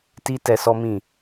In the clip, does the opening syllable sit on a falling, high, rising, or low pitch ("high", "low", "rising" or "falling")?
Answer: high